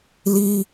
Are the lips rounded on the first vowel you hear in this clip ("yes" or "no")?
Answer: no